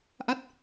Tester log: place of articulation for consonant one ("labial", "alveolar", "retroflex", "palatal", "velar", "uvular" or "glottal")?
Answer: glottal